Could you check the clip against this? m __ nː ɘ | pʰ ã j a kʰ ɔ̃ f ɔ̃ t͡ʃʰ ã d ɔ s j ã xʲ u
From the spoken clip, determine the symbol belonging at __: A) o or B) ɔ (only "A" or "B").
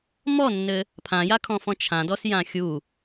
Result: B